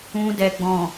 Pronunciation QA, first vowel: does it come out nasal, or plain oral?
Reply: nasal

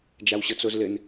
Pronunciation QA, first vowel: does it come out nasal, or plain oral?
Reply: oral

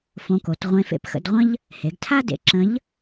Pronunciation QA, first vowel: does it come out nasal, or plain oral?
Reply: nasal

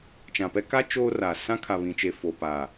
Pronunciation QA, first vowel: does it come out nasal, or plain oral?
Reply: nasal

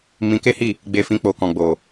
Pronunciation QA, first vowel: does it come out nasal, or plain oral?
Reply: nasal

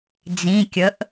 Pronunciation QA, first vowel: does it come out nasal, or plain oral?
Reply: nasal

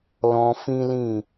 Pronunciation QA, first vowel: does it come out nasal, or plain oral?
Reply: nasal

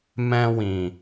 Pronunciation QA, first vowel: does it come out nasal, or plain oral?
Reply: nasal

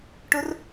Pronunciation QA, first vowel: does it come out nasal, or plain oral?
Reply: oral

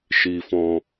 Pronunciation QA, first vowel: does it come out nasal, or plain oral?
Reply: oral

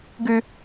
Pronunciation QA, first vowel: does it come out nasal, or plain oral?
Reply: oral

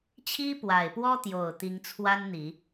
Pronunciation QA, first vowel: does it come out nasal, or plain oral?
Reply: oral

